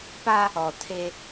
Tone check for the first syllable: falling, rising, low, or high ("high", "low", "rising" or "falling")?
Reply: high